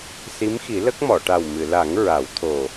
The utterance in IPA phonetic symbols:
s i˧˥ m x i˨˩˦ l ə˦˥ k̚ m ɔ˨˩˨ ʈ a˨˩ w m ɨ˨˩˨ l a˨˩˦ ŋ ɹ a˨˩˦ w t̪ʰ o˨˩

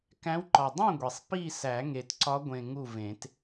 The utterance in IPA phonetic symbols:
k æ̃˧˥ w ǃ ɒ˨˩ dˤ õ˥˨ ɡʷ i˨˩ sˤ p i˥˨ s æ˨˩˦ ŋ e˨˩ t ǀ ɒ˧˥ ɡʷ ẽ˨˩ ŋ u˥˨ v ẽ˨˩˦ t

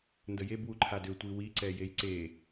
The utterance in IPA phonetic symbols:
n d ə j e b w u ǃʰ a d ʏ tʷ i w i ǀ ɛ j e j ǀ e

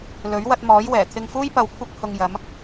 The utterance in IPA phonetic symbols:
l ɵ˨˥ ɥ w ɐ˧ t̚ m ɔː˨˥ j w ɛː˨˩ t̪ʰ ɪ˧ ŋ f uː˥ j p ɐ˧ w kʷʰ ɐ˧ k̚ h ʊ˧ ŋ j ɐ˨˧ m

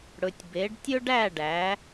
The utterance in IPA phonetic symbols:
ɽ ɵ˨ tʲ b e˨˦ ɖ tʲ ɵ˥ ɖ æ˥˧ ɖ æ˨˦

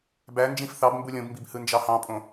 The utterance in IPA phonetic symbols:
b æ n d͡ʒ ĩ f θ ɑ b m b u lʲ õ b m b i b h ɯ n d͡ʒ ɑ h ɑ̃ pʼ õ

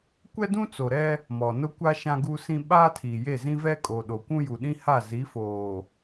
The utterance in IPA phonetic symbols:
kʷ ɛ˦ d ũ˦ t͡s o˨ ɾ ɛ˦ | m ɔ˨ n ʊ˦ kʷ a˦ ʃ ã˦ ɡ u˦ s ĩ˦ ɓ aː˦ tʰ iː˨ j e˦˨ z ĩ˦ v ɛ˦ kʼ o˨ ɗ o˨ kʷ ũ˦ j u˨ ɗ ĩ˦ h a˦˨ z i˨˦ f oː˨

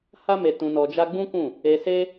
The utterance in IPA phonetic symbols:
h a˦ m e˧ t ũ˧ n ɔ˧ d͡ʒ a˦ ɡ͡b ũ˦ k ũ˦˨ | e˧ s e˦

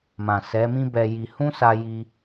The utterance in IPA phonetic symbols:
m ã˨ s ɛ˨˦ m ĩ˦ b ɛ˧ j i˧ h ũ˦ s a˧ j i˧

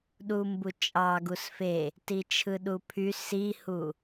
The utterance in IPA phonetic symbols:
ɗ u m b u t͡ʃʼ ɑ ɡ u s f e | t i t͡ʃʰ ɯ ɗ u pʰ y s i h u

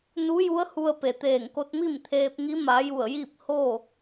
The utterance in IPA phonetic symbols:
n u˧˥ j u˧˥ ə̯ h u˧ ə̯ p e˩ t̪ eː˧˩ ŋ k o˧ t̚ m i˥˨ m t̪ʰ eː˧ p̚ ŋ i˧˥ m a˩˧ j u˧˩ ə̯ j i˥˨ p̚ h o˥˨

